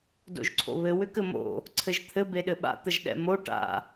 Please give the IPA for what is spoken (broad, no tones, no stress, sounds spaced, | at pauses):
d o̰ ʒ ǀʰ o̰ β ɘ w ʏ k ɘ m o̰ | ǀʰ ɘ ʒ t̪ʰ ɘ b e ɗ ɘ ɓ a̰ t̪ ə ʒ ɗ ɛ̰ m o ʈ a̰